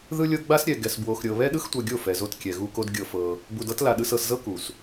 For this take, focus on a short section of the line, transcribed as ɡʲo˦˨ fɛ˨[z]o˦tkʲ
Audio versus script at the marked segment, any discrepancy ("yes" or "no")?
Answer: no